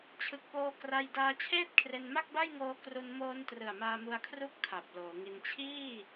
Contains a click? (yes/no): no